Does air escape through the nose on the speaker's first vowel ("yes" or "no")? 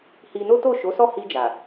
no